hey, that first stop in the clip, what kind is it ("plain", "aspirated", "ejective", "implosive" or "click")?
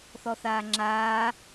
click